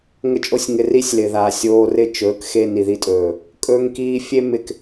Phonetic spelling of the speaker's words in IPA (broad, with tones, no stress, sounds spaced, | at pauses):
ŋ ə˦ t͡ʃʼ o˦ sʲ ŋ ɪ˧ r i˦ sʲ l ɪ˨ ð a˨ sʲ oː˧ r ɪ˦˨ t͡ʃ ɵː˨˦ k x e˧ n i˨ ð i˧ tʼ ɵː˨ | kʼ ɵː˦ ŋ k iː˦ fʲ e˦ m ɪ˦ k